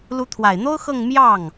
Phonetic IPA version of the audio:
l u˧˥ t̪ʰ w a˨˩ ɪ̯ n̪ o˥ ʊ̯ x ɤ˥˧ ŋ m j ɑ˥˩ ŋ

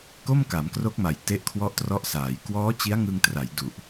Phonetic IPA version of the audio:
k o˥˩ m k a˩˦ m k r o˦˥ k̚ m a˨˩ j t e˦˥ ʔ kʰ w ɔ˦˥ ʔ t r ɔ˦˥ ʔ s aː˩˦ j k w ɔː˦˥ t͡ɕ i˦˥ a̯ ŋ ɯ˧ ŋ t r a˩˦ j d u˨˩ ʔ

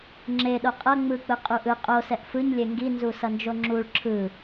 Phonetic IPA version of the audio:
ŋ͡ǁ e ɗ o qʼ ʌ ŋ͡m ɯ k͡p ɯ qʼ u ʔ ɯ qʼ o s ɛ ʔ f ɯ ɲ lʲ e ŋ ɡ i n z u s ʌ n d͡ʒ o ŋ͡ǁ u ɭ ǁʰ ɯ

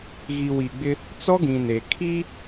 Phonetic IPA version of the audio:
ɣ i˨ w i˨ ɡ͡b ɪ˦ | t͡s ɔ˦ ɡ ĩ˨ n e˨ kʰ i˦

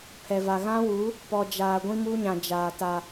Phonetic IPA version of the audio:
pʰ ɛ˨ v a˨ ɣ ã˦ w u˨˦ | p ɔ˨ d͡ʒ aː˨ ɡʷ ĩ˦ m u˦ ɲ ã˨ d͡ʒ aː˨ t a˨

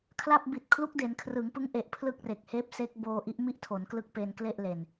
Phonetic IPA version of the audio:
kʰ l a˥˩ p̚ b i˨˩ t̚ kʰ l u˦˥ k̚ d e˩˦ n kʰ r ɯ˩˦ ŋ p ɯ˦˥ ŋ ʔ e˨˩ ʔ pʰ l ɯ˥˩ k̚ r e˨˩ k̚ h eː˦˥ p̚ s e˦˥ k̚ b oː˧ ʔ i˦˥ ʔ m i˥˩ ʔ tʰ o˩˦ n k l ɯ˦˥ k̚ p e˧ n k l e˥˩ ʔ l e˨˩ n

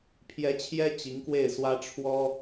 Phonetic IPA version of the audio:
pʰ j ɛ˧˥ t͡ɕʰ j ɛ˥ t͡ɕ i˧˥ ŋ k w e˥˩ ɪ̯ s w ä˥ ʈ͡ʂʰ w ɔ˥

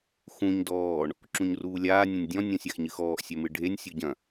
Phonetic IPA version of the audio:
x ũ ɲ d ɔː ɳ | ǁ ũ ɲ r uː lʲ aː nʲ ɐ̃ nʲ dʲ ɔ̃ nʲ ɔ̃ sʲ a x ɲ ɨ x ɔː ʔ sʲ ɛ m ɨ ɖʱ e nʲ sʲ o ɟ ɐ̃

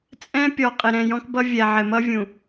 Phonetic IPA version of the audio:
t͡sʼ ɛ̃˦ pʲ ɔ˨ qʼ ɪ˨ ɾ ɛ̃˨ j ɔ̃˦ k b ʌ˦ vʲ ɛ˨ ʕ ɪ˨ m ʌ˦ vʲ ũ˨

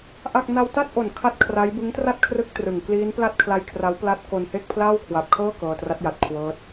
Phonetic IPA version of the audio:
ʔ a˥˩ k̚ n a˧ w t a˥˩ t̚ ʔ o˨˩ n kʰ a˥˩ t̚ kʰ r a˦˥ j b ɯ˦˥ ŋ t r a˥˩ t̚ kʰ r ɯ˦˥ k̚ t r ɯ˨˩ ŋ k l iː˦˥ n p l a˥˩ t̚ kʰ l a˦˥ j kʰ r a˦˥ w p l a˦˥ t̚ k o˧ n h e˥˩ k̚ pʰ l aː˥˩ w kʰ w a˨˩ p̚ kʰ ɤː˥˩ k ɤː˧ t r a˦˥ t̚ j a˨˩ t̚ kʰ w ɤː˦˥ t̚

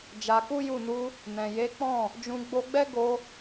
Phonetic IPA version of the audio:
d͡ʒ a˧ k u˦ j u˦˨ n u˧ | n ɛ̃˨ j e˨˦ k͡p ɔ̃˦˨ | d͡ʒ ũ˧ ɡ͡b o˧ ɡ͡b ɛ˦ ɡ o˧

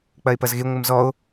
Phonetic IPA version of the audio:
k͡p ɐ e̯ p ɐ z ɣ e ŋʷ ɨ m z ɔ o̯

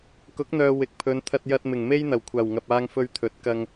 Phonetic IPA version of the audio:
k ʊ˨˥ k̚ n̪ œː˨ w ɪ˨˥ k̚ pʰ ɵ˨˧ n t̪ʰ ɐ˧ t̚ j ɐ˧ t̚ m ɪ˨˩ ŋ m e˥ j n̪ ɐ˨˩ w kʷʰ aː˨˩ w ŋ ɐ˨ p̚ aː˧ ŋ f ɵ˧ ɥ t̪ʰ ɵ˨˥ t̚ k ɐ˧ ŋ

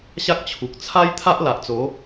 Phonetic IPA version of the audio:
ɕ a˦ k̚ t͡ɕʰ u˨ k̚ t͡sʰ a˦ j t̪ʰ a˦ ʔ l a˨ ʔ t͡s o˨˦

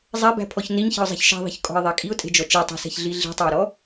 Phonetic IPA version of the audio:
zˤ ɛ b æ̤ pʰ ɔ ç n i ɲ ç i̤ ʊ̯ zˤ i̤ ç ʃ ɛ̤ ðˤ i̤ ç kʼ ɔ̤ ɪ̯ ðˤ æ kʼ i ʊ̯ tʼ e̤ d͡ʒ ɔ t͡ʃ e tˤ i̤ s ɛ̤ ç ɮ i ɮ i̤ tˤ ɛ ʊ̯ ɾ ɔ

